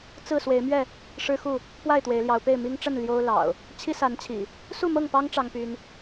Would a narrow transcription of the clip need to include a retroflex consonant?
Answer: yes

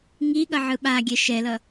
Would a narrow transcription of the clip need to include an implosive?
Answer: yes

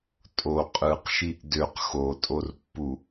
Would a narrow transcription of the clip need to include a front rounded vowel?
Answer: yes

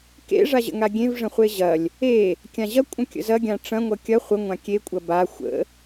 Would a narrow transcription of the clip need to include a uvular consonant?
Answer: yes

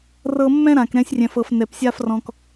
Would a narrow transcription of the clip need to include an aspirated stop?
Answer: no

